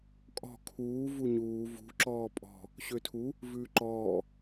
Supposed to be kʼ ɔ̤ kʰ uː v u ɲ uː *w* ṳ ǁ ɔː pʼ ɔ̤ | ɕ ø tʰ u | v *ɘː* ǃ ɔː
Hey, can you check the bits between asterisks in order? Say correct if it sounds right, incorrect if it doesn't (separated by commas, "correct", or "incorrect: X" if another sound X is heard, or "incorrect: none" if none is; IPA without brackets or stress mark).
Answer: incorrect: v, incorrect: ʉː